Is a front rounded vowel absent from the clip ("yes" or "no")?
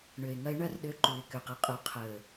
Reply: no